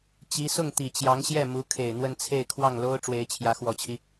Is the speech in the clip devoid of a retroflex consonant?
no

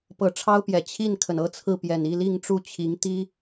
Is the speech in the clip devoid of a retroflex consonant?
no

